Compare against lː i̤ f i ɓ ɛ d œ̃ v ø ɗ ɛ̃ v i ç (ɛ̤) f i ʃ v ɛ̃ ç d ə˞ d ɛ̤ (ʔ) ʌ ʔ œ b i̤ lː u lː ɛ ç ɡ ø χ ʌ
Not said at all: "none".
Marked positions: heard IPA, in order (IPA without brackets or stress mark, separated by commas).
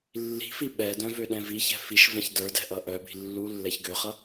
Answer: ɛ̤, ʔ